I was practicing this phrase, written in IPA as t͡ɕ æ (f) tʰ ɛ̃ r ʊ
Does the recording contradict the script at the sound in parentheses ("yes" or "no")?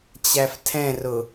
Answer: no